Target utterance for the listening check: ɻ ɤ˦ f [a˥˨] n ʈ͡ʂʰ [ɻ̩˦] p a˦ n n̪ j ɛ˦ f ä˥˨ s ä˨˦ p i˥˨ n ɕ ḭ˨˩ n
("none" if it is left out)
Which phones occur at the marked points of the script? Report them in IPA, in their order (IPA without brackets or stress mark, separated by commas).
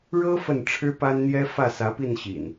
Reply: ə˥˨, ɻ̩˦